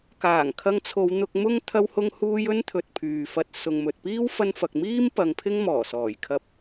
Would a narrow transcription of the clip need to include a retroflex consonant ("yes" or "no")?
no